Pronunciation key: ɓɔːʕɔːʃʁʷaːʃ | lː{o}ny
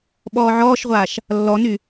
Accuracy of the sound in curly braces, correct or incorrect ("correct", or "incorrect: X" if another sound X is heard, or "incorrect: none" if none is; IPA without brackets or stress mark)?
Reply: incorrect: ɔ